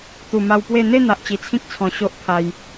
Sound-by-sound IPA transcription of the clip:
t̪ u˨˩ m a˧ w p w e˥˧ n̪ e˥˧ n̪ a˨ ʔ t͡ɕ i˨˩ t͡sʰ ĩ˦ k̚ t͡sʰ ɔ̃˨˩ ɕ o˦ ʔ pʰ a˧ j

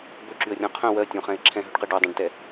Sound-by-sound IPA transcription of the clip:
b ɵ ǁ y ə̯ rʲ ɔ̃ qʰ œ̃ w ɜ tʲ õ χ ɛ̃ ɪ̯ ǁʰ ɛ̃ ɦ ɵ ɖ q ɜ ɖ o dˤ ɛ̃ ɖ t ɛ

